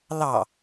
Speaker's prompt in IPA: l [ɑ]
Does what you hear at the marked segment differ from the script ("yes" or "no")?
no